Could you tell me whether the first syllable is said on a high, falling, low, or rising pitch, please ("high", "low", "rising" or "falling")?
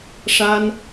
high